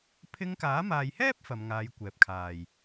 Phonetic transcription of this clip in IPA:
pʰ ɪ˧ ŋ k aː˨˥ m aː˨ j h ɛː˥ p̚ f ɐ˨˧ m ŋ aː˨˧ j kʷ ɛː˨ p̚ kʰ aː˨˩ j

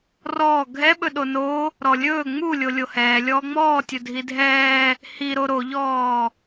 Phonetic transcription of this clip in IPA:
r ɔː ɡʱ ɛ ɓ ɵ ɗ o n o | ɾ ɔ lʲ ɵː ŋ͡m u lʲ o lʲ o h ɛː lʲ ɔː ŋ͡m ɔː tʲ ɵ dʱ i dʱ ɛː | h i ɾ o ɾ o ʎ ɔː

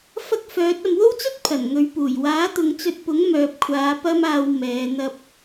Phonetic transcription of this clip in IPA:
f ɐ˥ k̚ f œː˨˥ t̚ ɐ˨ m w o˥ w t͡s ɵ˥ t̚ pʰ ɐ˨˩ n ŋ ɵ˨˧ ɥ p uː˨˩ j w aː˨˥ t̪ ʊ˨˧ ŋ t͡s ɵ˧ t̚ p ʊ˨˥ ŋ m œː˨ p̚ kʷʰ aː˨˧ p ɐ˥ m aː˧ w m ɛː˨˧ n̪ ɐ˥ p̚

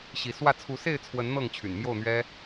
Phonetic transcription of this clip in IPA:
ɕ i˨˦ s w ä˥˨ t͡sʰ u˨˦ s e˥˨ ɪ̯ t͡sʰ w ə˨˦ n n̪ ɤ˥˨ ŋ t͡ɕʰ y̰˨˩ n m j o˥˨ ʊ̯ n̪ ɥ ɛ˦

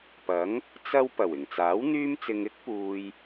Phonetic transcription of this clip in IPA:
p ɐ˨˥ ŋ | t͡s ɐ˧ w p ɐ˨˩ w ɪ˨˩ ŋ t͡s aː˨˥ w n̪ yː˥ m t͡s ɪ˧ ŋ ɪ˥ k̚ p uː˨ j

